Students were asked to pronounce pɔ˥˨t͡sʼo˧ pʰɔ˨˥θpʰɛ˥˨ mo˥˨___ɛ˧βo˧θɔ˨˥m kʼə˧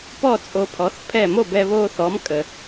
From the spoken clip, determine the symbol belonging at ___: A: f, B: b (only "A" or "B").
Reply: B